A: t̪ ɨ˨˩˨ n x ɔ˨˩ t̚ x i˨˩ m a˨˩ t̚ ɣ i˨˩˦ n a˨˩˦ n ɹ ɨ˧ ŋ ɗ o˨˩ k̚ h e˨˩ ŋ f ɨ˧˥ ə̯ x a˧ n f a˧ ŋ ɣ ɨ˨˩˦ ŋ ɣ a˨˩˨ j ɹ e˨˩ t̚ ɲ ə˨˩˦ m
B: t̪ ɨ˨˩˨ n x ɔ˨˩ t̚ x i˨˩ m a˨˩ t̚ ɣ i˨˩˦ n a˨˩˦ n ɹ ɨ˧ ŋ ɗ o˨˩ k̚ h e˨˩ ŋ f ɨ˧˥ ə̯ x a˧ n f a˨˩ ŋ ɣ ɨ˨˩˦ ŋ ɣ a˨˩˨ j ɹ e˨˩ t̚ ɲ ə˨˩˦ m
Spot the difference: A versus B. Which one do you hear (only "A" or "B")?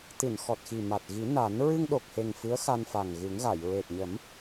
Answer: B